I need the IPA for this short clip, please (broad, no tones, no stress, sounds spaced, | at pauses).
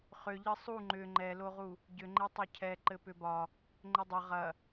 χ ʏ ʎ ɘ sˤ u ŋ͡ǃ ʏ ŋ͡ǃ ɛ l o ʁ u | ɟ ʏ ŋ͡ǃ e tˤ o cʰ ɛ ǃ ɘ p ʏ b ɒ | ŋ͡ǃ ɘ dˤ ɐ ʁ ɐ